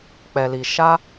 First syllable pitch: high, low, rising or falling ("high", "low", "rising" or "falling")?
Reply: low